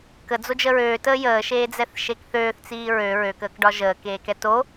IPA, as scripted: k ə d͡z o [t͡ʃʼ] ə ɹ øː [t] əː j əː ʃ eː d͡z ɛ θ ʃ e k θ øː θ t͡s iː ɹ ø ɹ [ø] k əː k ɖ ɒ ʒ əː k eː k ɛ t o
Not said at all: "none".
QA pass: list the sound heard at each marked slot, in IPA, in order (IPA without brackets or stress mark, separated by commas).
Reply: d͡ʒ, t, ø